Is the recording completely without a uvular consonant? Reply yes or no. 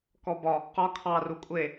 no